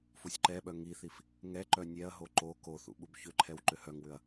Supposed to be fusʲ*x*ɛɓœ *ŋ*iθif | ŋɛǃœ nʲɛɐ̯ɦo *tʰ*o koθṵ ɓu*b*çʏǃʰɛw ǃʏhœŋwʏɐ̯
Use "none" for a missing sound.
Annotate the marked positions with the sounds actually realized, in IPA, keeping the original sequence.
ǃ, ŋ, ǃ, b

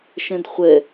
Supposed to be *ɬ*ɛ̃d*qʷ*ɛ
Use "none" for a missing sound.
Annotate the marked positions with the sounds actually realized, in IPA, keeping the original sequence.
ʃ, χʷ

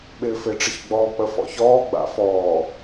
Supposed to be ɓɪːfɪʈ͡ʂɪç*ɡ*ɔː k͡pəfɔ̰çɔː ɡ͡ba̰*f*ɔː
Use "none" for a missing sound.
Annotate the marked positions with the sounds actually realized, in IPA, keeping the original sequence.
ɡ͡b, f

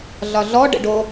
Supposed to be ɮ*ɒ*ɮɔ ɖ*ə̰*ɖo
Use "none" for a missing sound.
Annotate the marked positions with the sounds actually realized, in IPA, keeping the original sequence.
ɒ, ə̰

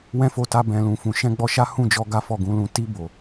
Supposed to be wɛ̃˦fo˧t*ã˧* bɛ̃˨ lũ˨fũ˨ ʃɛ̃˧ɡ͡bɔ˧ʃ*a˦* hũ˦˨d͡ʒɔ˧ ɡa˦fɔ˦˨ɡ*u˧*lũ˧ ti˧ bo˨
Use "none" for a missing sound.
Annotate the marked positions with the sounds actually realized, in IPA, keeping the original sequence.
a˧, a˦, ũ˧

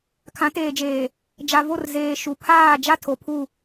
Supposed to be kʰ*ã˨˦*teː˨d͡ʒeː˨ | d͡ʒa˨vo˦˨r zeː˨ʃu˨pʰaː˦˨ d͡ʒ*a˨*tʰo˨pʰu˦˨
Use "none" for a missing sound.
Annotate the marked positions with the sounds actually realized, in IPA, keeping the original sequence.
ã˨˦, a˦

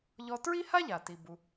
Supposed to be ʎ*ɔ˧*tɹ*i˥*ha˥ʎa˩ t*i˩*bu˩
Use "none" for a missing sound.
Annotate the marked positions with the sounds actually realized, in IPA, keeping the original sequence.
ɔ˧, i˥, i˩

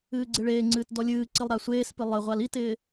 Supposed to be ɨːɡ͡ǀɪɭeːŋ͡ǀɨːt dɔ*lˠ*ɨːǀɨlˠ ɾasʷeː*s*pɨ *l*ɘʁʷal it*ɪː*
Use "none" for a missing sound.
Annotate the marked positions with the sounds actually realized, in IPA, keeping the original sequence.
lʲ, s, lˠ, ɪː

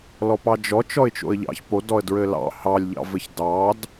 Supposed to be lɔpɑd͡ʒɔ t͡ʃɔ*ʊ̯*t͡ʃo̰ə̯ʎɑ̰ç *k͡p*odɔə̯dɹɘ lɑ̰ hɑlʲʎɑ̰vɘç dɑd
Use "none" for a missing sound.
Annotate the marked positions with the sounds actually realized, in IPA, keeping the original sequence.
ɪ̯, p

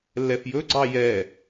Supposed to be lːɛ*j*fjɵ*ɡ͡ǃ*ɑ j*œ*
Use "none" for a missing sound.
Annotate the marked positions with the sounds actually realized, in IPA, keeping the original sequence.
none, ɡ͡ǀ, ɛ

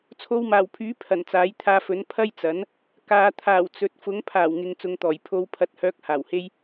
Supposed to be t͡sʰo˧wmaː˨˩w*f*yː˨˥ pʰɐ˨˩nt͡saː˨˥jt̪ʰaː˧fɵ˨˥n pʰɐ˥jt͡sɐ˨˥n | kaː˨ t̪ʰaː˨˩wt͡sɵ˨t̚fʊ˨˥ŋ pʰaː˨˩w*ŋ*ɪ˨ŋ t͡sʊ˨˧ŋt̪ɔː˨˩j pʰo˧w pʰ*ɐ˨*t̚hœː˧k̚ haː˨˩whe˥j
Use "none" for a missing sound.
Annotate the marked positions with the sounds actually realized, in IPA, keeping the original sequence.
pʰ, ŋ, ɐ˧

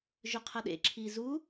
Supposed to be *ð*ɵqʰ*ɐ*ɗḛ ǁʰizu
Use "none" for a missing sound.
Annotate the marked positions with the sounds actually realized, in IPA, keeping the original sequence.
ʒ, ɐ

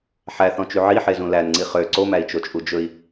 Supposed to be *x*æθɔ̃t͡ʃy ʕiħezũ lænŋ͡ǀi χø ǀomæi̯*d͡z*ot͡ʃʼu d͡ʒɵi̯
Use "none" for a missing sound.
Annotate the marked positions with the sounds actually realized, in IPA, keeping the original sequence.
ħ, t͡ʃ

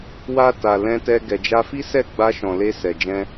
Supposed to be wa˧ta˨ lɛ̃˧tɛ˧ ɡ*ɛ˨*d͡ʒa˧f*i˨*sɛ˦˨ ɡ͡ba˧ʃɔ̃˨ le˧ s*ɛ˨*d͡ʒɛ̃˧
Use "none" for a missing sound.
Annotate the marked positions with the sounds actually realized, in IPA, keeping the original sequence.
ɛ˨, i˦, ɛ˨

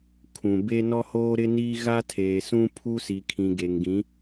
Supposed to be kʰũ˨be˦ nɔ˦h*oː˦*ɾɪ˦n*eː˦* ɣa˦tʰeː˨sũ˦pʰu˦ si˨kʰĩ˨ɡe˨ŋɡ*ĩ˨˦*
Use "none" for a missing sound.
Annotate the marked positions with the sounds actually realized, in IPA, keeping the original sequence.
oː˦, iː˦, ĩ˨˦

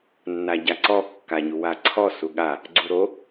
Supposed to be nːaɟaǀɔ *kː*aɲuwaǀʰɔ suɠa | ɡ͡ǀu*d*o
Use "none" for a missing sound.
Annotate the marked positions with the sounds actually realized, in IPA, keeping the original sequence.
kː, ɾ

